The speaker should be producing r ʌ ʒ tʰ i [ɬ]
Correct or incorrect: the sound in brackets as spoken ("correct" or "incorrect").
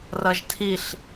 correct